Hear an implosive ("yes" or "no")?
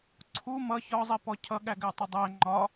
yes